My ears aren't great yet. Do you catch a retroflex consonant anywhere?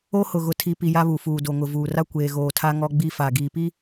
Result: no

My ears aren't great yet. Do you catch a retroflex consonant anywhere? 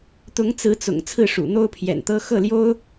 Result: yes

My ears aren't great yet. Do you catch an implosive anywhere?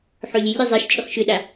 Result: yes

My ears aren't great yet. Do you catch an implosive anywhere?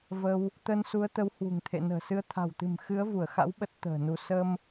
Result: yes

